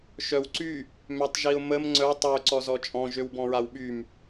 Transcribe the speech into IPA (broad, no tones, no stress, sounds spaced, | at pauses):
ʃ œ w ǀ y | m ø tˤ ʒ i ʊ̯ m ə m ŋ͡ǀ œ tˤ ø ǀ ɔ z ɔ t͡ʃʼ ɔ̃ ʒ ø w b ɔ̃ ɹ a w ɓ y m